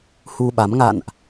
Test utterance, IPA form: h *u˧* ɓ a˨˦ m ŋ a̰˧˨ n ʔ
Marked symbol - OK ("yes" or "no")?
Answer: yes